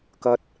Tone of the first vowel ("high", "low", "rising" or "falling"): high